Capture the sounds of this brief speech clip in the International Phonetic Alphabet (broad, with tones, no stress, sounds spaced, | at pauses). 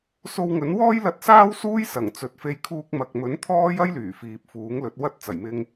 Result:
s o˧ w ŋ ɵ˨˥ n w ɔː˥ j l ɐ˧ t̚ s aː˥ w s uː˥ j s ɐ˨˩ ŋ t͡s ɵ˨ t̚ f e˧ j kʰ uː˧ k̚ m ɐ˨ k̚ m ɵ˨˥ n t̪ʰ ɔː˥ j ɐ˥ j l yː˨˩ f iː˨ p̚ f uː˨˥ ŋ l ɵ˨˥ t̚ w ɐ˥ t̚ t͡s ɐ˨˩ j m ɪ˧ ŋ